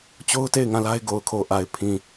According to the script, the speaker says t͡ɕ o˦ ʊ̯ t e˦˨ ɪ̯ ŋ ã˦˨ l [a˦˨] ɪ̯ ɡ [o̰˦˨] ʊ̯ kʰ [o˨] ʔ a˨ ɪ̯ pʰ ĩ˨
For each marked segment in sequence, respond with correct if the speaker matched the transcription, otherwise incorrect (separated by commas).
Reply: incorrect, incorrect, correct